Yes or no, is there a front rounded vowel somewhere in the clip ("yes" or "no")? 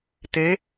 no